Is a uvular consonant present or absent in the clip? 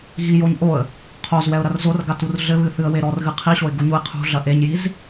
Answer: present